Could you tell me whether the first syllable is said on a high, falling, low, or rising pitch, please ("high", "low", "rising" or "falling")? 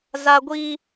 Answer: high